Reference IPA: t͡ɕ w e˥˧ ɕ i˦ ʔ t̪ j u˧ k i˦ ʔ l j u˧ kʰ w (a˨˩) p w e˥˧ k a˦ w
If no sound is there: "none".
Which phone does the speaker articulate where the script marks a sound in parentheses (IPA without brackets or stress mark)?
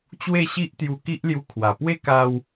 a˨˩